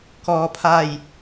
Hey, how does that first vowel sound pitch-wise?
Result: low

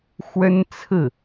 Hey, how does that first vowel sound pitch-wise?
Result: high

